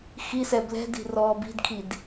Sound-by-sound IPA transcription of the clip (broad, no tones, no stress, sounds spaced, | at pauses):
x i s ɛ b l ɛ̤ d i̤ r ɔː b i̤ d kʰ i d